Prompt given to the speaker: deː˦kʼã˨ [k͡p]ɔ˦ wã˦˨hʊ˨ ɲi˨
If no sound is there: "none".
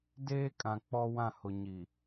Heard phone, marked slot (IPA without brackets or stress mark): k͡p